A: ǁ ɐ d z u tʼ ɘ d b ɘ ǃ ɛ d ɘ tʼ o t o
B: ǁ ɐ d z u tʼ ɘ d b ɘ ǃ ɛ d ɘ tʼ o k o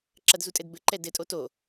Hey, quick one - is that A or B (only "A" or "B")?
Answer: A